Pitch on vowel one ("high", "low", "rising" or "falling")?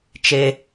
high